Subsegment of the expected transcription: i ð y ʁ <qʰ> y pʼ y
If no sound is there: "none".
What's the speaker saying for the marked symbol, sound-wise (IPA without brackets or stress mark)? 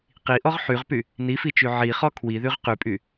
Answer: q